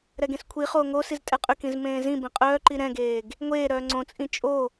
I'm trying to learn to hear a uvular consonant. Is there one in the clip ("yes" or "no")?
yes